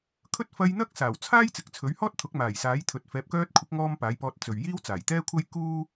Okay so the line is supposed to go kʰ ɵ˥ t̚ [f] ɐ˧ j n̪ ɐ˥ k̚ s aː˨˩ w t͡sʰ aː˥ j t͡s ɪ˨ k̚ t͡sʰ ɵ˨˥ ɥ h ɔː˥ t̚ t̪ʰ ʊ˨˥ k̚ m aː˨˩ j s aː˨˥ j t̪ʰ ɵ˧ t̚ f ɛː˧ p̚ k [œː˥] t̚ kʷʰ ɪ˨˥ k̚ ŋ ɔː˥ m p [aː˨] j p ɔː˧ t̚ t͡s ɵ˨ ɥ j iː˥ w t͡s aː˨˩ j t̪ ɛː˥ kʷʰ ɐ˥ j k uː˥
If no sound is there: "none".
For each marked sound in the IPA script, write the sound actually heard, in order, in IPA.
f, œː˥, aː˨˥

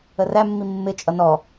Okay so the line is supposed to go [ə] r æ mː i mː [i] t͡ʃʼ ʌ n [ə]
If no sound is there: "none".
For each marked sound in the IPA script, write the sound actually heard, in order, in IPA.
ə, ɪ, ɔ

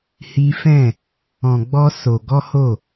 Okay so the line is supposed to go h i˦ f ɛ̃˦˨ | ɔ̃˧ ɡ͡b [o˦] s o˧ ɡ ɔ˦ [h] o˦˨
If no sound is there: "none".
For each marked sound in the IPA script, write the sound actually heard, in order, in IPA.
ɔ˦, h

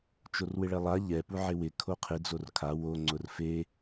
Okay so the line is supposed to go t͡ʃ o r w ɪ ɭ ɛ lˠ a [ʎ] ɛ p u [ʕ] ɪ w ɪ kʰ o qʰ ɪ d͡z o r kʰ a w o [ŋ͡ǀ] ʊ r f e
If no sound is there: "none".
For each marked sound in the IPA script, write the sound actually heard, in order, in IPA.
ʎ, ʕ, ŋ͡ǀ

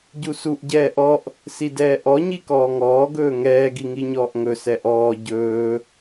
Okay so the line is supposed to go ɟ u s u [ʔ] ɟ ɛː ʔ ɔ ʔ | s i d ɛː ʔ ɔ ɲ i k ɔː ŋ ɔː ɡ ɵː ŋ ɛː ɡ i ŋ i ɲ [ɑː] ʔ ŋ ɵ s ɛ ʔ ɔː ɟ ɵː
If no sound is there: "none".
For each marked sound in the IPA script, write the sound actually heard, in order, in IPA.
ʔ, ɔː

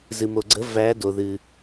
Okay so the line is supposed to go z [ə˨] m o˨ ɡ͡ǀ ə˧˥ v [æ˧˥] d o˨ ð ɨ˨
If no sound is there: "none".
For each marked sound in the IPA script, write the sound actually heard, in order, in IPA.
ɨ˨, æ˧˥

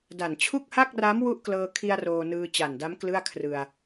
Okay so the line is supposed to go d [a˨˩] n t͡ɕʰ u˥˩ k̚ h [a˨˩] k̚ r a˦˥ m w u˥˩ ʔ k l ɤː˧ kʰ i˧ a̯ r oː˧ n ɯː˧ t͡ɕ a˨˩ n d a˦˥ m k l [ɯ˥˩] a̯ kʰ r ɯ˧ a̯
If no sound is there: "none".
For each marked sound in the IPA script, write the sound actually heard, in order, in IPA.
a˨˩, a˥˩, ɯ˥˩

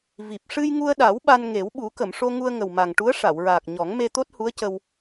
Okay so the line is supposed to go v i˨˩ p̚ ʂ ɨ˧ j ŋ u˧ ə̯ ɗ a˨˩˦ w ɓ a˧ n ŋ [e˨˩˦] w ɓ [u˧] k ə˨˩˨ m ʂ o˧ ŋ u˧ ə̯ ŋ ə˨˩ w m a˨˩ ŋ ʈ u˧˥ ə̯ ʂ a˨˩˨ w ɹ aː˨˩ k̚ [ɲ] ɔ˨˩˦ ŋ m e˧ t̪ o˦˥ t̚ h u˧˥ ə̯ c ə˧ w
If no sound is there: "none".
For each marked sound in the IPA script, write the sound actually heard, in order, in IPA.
e˨˩˦, u˨˩˦, ɲ

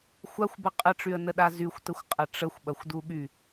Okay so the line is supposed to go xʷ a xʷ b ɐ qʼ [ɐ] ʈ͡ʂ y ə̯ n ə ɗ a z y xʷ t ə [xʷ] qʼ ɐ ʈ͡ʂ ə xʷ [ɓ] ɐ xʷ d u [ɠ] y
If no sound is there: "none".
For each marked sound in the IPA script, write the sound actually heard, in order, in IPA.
ə, xʷ, ɓ, ɠ

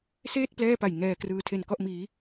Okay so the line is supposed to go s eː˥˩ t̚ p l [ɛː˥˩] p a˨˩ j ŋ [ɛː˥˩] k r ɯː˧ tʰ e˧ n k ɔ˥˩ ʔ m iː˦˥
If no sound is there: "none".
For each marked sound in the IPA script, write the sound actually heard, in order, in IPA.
ɛː˥˩, ɛː˧

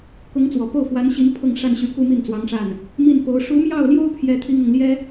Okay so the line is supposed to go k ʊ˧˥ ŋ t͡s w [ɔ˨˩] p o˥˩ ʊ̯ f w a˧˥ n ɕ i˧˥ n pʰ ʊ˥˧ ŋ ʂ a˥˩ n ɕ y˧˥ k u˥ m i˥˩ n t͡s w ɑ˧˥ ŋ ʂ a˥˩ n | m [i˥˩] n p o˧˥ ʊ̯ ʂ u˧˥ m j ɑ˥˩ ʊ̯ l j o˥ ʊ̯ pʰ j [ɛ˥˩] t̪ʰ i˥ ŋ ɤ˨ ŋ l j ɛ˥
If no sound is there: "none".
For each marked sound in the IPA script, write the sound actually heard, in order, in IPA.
ɔ˨˩, i˥˩, ɛ˥

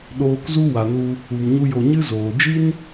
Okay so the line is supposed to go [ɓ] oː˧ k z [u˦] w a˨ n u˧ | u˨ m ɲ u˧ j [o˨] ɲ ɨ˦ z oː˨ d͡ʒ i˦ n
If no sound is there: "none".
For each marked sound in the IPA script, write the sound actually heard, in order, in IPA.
ɗ, u˦, o˨

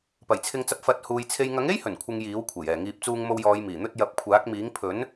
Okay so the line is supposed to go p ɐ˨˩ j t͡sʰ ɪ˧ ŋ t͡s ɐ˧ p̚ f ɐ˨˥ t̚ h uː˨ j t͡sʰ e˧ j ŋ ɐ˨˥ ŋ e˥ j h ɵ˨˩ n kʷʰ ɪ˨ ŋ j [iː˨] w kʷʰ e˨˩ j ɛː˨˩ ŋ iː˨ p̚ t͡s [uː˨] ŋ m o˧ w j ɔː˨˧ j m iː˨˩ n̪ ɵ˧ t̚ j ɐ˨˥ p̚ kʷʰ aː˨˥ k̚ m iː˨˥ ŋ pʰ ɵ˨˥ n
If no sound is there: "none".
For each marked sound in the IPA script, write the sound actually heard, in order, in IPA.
iː˨˥, uː˧

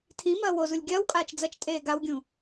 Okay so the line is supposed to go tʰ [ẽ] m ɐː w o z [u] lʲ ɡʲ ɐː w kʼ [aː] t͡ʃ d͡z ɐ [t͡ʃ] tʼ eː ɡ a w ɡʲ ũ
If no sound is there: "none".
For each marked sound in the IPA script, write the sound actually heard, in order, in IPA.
ĩ, u, aː, t͡ʃ

